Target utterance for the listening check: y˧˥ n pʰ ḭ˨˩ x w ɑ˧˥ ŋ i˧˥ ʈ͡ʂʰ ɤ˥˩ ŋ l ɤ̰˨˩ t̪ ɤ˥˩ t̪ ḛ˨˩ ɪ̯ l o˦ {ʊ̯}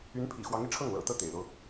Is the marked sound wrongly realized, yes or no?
no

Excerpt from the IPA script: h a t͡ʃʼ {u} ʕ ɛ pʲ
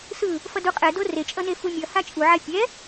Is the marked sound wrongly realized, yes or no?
no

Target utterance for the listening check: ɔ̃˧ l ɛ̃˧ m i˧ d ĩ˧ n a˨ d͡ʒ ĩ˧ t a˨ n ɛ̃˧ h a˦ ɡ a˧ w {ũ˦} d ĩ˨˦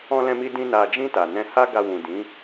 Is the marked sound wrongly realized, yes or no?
yes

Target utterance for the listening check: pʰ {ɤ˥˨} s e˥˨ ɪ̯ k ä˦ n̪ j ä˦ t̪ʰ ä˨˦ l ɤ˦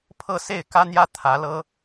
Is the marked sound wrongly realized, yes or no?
no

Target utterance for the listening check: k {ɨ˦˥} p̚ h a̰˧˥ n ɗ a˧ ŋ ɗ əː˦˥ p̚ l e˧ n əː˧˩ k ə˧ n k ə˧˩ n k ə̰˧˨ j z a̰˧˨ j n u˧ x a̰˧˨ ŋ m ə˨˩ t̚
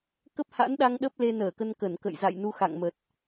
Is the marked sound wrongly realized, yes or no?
yes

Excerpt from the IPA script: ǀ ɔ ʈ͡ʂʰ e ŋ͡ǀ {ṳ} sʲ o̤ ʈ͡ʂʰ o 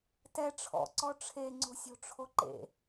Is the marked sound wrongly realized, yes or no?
yes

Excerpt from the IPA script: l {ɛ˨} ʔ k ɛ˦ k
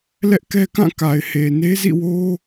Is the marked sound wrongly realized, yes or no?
yes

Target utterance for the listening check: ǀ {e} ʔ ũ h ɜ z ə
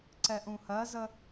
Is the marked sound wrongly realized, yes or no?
yes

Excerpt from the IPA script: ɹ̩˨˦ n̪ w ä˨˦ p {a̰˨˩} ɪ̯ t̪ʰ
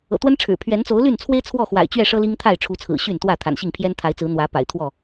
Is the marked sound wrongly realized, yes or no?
no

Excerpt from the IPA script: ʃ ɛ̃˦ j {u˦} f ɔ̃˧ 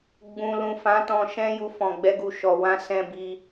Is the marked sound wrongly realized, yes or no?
no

